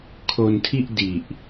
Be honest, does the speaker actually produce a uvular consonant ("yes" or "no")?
no